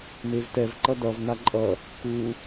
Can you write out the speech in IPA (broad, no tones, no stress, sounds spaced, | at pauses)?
m e v t ɛ v ǃ ʌ d ʌ v n a ǃʼ ʌ | k u